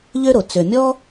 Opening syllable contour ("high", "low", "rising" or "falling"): high